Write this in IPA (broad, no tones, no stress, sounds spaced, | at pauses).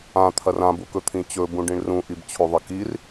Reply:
ã t̪ʰ ɐ r ã b u k ɵ t̪ʰ ĩ t͡ɕ ɵ b ũ ɖ ĩ ɳ r ũ ʔ i b t͡ɕʰ o ðˤ ɐ k i r